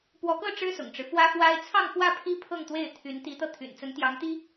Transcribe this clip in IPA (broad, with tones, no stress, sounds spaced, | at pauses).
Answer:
p w ɔ˧˥ k ɤ˥˩ ʈ͡ʂ ɻ̩˥ s ʊ̰˨˩ ŋ ʈ͡ʂ ɻ̩˦ f w ä˥ f w a˥ ɪ̯ t͡sʰ ɑ˥˧ ŋ f w ä˥˩ pʰ i˥ pʰ ɤ˥˧ ŋ t̪ w e˥˩ ɪ̯ t̪ʰ y˧˥ n t̪ i˧˥ t̪ ɤ˧ t̪ʰ y̰˨˩ n t͡s ə˧˥ n t̪ j ɑ˧˥ ŋ t̪ i˥